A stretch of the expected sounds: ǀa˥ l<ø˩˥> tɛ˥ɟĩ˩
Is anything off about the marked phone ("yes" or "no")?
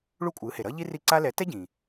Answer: yes